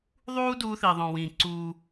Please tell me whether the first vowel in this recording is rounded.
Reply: yes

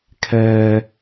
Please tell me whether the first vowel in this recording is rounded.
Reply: no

